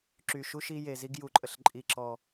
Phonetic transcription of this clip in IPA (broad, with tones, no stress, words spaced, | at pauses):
ǁy˨ʃu˧ʃi˧ je˨zi˧ɡ ju˨ǃʼə˨ɬ ǃʼi˨ǁɔ˨